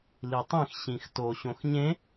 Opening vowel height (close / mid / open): close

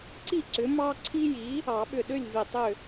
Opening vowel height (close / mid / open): close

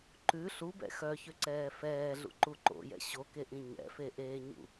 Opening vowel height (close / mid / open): close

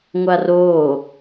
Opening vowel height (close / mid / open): open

